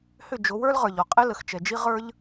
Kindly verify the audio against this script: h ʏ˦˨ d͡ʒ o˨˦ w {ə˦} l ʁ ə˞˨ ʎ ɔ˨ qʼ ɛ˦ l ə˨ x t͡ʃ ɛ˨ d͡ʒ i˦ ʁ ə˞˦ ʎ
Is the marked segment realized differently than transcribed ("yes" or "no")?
yes